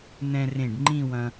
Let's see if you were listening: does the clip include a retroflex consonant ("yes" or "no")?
yes